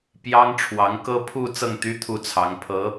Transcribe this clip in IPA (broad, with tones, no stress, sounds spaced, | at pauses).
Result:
p j ɑ˥ ŋ ʈ͡ʂʰ w ɑ˧˥ ŋ k ɤ˥ pʰ u˥˧ t͡s ɤ˥˩ ŋ t̪ y˥ t̪ʰ u˥˩ t͡sʰ ɑ˧˥ ŋ pʰ ɤ˧˥